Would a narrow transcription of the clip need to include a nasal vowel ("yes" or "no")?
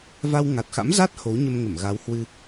no